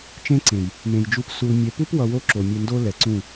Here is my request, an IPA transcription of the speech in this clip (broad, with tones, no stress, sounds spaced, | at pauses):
t͡ʃ ẽ˦ ǀ ẽ˨ j | m ẽ˨ j d͡ʒ u˧ p s u˧ l mʲ ɛ˨ p u˦ p w ʌ˧ w o˦ ǁ o˨ mʲ ɛ˧ n d o˦ l ɛ˨ ǀ ũ˦˨